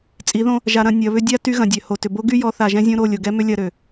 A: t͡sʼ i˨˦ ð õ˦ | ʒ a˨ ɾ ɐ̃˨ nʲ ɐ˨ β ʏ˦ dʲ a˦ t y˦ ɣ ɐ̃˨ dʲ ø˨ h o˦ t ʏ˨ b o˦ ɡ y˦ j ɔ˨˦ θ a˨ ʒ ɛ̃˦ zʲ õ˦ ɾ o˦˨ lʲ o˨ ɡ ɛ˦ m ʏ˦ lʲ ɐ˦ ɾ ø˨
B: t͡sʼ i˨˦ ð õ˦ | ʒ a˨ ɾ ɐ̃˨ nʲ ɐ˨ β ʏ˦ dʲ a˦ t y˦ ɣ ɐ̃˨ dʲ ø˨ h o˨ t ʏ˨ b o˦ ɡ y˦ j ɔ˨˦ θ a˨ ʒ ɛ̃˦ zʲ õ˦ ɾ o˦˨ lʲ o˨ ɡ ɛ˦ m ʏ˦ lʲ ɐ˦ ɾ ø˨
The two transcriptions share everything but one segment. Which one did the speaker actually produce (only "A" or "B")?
B